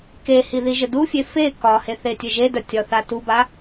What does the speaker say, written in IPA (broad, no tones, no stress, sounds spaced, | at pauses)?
k e h i ð i ʒ ɘ d u fʲ e f e k ɒ h e θ e tʲ ɘ ʒ e d œ tʲ ɒ θ a t u b a